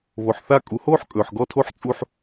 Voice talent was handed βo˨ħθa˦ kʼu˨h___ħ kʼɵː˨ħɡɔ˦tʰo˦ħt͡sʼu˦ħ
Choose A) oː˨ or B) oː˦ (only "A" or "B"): B